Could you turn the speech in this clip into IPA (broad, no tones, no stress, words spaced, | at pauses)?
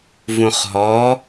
vũχɦɔ